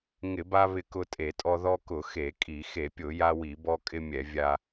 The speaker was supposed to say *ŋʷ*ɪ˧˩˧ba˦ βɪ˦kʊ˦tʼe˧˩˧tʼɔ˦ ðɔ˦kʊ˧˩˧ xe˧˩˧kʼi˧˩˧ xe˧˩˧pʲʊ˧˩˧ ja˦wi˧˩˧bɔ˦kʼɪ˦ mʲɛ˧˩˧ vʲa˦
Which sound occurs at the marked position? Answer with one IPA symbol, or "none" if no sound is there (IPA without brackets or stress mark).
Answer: ŋ